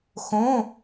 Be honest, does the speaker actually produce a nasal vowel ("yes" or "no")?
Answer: yes